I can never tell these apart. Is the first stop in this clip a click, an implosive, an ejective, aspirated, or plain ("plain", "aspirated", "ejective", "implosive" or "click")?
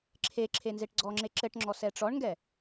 click